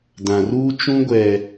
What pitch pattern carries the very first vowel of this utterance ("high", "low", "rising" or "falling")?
low